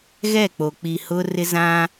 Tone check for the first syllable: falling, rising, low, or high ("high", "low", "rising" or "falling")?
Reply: falling